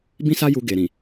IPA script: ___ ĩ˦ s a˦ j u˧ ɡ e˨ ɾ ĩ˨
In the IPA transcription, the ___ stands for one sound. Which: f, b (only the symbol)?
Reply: b